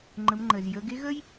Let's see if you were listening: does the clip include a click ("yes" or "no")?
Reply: yes